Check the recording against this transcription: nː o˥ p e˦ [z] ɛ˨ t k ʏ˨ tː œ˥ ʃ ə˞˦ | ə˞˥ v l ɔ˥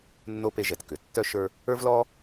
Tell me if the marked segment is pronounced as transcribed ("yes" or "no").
no